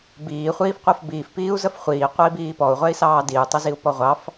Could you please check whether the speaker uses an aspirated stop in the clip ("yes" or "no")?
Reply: no